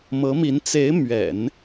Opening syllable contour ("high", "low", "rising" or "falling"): rising